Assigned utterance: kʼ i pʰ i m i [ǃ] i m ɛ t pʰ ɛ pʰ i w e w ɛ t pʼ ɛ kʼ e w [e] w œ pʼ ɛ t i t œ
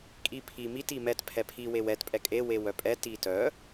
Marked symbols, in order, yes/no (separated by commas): no, yes